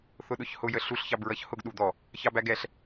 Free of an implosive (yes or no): no